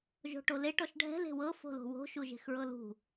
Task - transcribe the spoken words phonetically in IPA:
ʒ o̤ ʈ o l e ʈ ɔ ʃ ɖʱ ɛ̤ l e̤ w ɤ f o̤ l o̤ w o̤ ʃ u ʒ e̤ x ɹ ɤ l ṳ

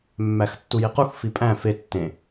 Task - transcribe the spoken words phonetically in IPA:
mː æ x tː u j i q u x f i pʼ æ̃ f e tː ẽ

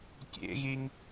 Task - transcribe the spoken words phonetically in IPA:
tʲ ḛ ɣ i ŋ

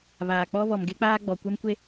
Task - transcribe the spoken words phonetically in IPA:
β aː˨ k͡p ɔ˦ β ɔ˨ m ɡ e˦ k͡p aː˦ ɡ͡b ɔ˨ kʷ ɛ˦ m kʷ e˦

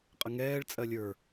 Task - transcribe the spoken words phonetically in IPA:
qʼ ə ŋ ɛː ɭ t͡sʼ ɜ lʲ ə˞

